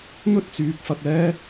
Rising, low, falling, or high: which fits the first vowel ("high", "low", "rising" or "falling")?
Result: high